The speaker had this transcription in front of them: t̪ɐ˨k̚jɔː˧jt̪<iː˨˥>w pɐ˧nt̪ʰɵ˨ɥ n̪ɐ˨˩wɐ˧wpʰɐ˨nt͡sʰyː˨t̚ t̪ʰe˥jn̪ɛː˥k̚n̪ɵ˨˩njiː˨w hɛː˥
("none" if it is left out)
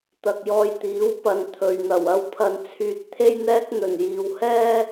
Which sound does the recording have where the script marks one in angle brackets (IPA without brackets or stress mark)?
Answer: iː˨˥